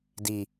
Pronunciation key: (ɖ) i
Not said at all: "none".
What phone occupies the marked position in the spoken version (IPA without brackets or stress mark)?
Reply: d